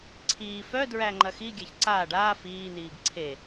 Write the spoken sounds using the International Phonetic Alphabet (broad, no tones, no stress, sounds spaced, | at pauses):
ǀʰ iː f œ d ɹ æ ŋ͡ǃ ɐ x i ɡʲ æ ç ǀ aː ɖ aː f iː n iː ɡ ǀʰ e